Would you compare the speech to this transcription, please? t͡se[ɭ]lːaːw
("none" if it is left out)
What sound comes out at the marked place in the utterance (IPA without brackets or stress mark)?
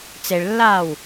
ɭ